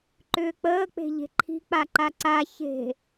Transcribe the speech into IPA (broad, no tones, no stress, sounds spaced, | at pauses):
ǃ ʏː k͡p əː k͡p e̤ ʎ e̤ ǃʰ i̤ k͡p a ǃ a ǀ a ç e̤